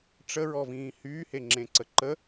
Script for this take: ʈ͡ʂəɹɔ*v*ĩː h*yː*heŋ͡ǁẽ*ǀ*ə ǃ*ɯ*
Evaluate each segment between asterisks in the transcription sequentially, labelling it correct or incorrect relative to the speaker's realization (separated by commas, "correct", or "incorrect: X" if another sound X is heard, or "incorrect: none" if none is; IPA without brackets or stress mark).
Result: correct, correct, correct, incorrect: ə